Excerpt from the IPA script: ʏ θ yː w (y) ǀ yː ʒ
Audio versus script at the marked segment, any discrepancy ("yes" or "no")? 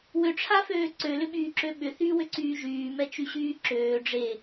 yes